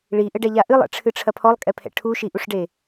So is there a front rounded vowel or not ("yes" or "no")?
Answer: no